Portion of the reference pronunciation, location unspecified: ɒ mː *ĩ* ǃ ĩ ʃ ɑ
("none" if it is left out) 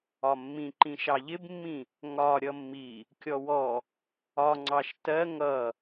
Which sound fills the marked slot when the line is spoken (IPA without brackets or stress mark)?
ĩ